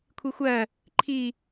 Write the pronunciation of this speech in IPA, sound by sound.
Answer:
kʷʰ i xʷ ɜ | ǃʰ i

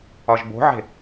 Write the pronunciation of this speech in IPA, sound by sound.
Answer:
ɒ ʒ b o̤ ʕ e̤

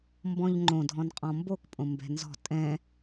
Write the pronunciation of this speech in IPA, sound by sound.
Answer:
m b ɔ̃ ʎ ŋ͡ǃ õ dʱ ɔ̃ n qʼ ɔ̃ m b o k pʼ õ m b ɛ̤ n z ɔ̤ tʼ ɛ̃

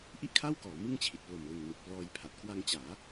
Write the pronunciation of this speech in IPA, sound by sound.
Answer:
ʔ i˥˩ ʔ kʰ a˥˩ w k ɔː˩˦ m ɯ˥˩ ŋ t͡ɕʰ i˨˩ t̚ p l o˨˩ m l ɯ˨˩ ŋ n ɯ˨˩ k̚ p l ɔː˧ j pʰ a˨˩ t̚ k w a˧ ŋ t͡ɕ aː˩˦

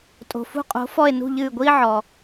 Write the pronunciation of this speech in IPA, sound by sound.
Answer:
tʼ o̤˩ f ṳ˦˨ qʼ o̤˨˥ f ɔ˦˨ e̯ n ṳ˦˨ ʎ ɨː˦˨ ɡʷ iː˥ ʕ ɔ˩

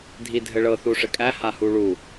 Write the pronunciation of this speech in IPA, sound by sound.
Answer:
dʱ i dʱ ɘ ɭ ɤ θ u ʂ ɘ kʼ æ h a h u ɭ u

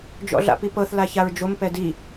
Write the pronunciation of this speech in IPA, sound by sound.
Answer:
d͡ʒ ɔ̰ ɮ a̰ p i p ɤ θ l a ç a ɹ d͡ʒ o m p ɛ d i

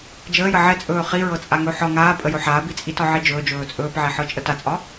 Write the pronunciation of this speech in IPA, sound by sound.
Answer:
d͡ʒ əː j ə ʕ ɛ t͡sʼ ɵː χ i ɹ ɤ t͡sʼ a ŋ ɵ ħ ɒ ŋ aː pʼ ə j ɵ ħ aː b i t͡sʼ i t ɒ ʕ i d͡ʒ ɵː d͡ʒ ɵː t͡sʼ ɵː p ʕ ɛ ħ ɤ t͡ʃʼ ə t a t͡sʼ ɒ

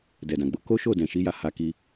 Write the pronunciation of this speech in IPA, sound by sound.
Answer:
d ɛ˨ d ã˨ ɡ͡b o˧ k o˦ ʃ o˦˨ d ɛ̃˨ ʃ i˨˦ j a˧ h a˧ k i˧

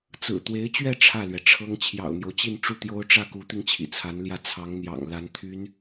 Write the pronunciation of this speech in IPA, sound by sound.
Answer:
t͡s ɹ̩˨˩ t̪ w e˧˥ ɪ̯ t͡ɕ ɥ ɛ˥˧ ʈ͡ʂʰ ä˥˩ l ɥ ɛ˩ ʈ͡ʂʰ ɤ˥ ŋ t͡ɕʰ j ɑ̰˨˩ ʊ̯ n̪ j o˦ ʊ̯ t͡ɕ i˥˧ n ʈ͡ʂ u˥˩ t̪ j o˥ ʊ̯ ʈ͡ʂ ä˥˩ k u˧˥ t̪ i˧ ŋ t͡ɕʰ ḭ˨˩ t͡sʰ a˧˥ n l j ä˥˩ t͡sʰ ɑ˧˥ ŋ n̪ j ɑ̰˨˩ ŋ l a˧˥ n t̪ʰ y˧˥ n

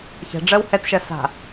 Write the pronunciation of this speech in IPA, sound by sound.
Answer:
ç ɛ̤ ɖ͡ʐ ɜ w h ɛ t ʃ ɜ s a̤

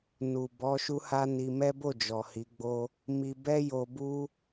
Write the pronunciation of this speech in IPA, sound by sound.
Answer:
n u˨ b ɔ˨˦ ʃ u˦ h a˦ n i˧ m ɛ˦ b o˦˨ d͡ʒ ɔ˨ h i˨˦ ɡ͡b o˦ | m i˧ b ɛ˦ j o˧ b u˦

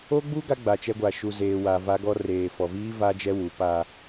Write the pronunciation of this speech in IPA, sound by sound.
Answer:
o˦ ɡ͡b u˦ ɡ a˦ ɡ͡b a˨ t͡ʃ ɛ˦ ɡʷ a˨ ʃ u˨ z eː˨ w a˨ v a˦ ɡ ɔ˦ r eː˨ f ɔ˨ v iː˦ v a˦ d͡ʒ ɛ˦ w u˨˦ p a˦

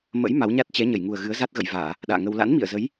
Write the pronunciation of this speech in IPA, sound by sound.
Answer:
m ə̰˧˥ j m a˨˦ w ɲ a˦˥ t̚ t͡ɕ ɛ˨˦ ɲ ə˧˩ j ŋ u˨˩ ə̯ ɣ ɨ˨˦ ə̯ z a˦˥ t̚ ɣ ə̰˧˨ j v aː˧˩˨ | ɗ a̰ː˧˨ ŋ ə˧ w l a̰˧˥ n m ḭ˧˨ ə̯ z ə˨˦ j

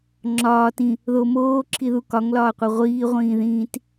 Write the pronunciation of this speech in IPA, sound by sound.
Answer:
ŋ͡ǁ ɒː t ĩ | ð o m oː ǁʰ i ð u k ɒ ŋ l ɒː qʷ æ ʁʷ iː ʁʷ ĩː ð ĩː t

